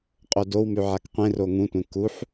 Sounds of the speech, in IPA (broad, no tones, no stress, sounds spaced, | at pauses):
qʼ o d o w m ʉ ʕ a k qʷ ẽ r o ŋ ũ tʷ ẽ k u ħ